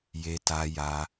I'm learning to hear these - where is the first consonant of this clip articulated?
palate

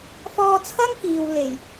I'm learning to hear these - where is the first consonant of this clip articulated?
lips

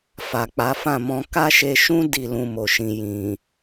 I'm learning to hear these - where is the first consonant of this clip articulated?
lips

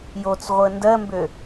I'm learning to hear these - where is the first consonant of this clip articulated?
palate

